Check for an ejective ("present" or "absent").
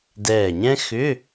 absent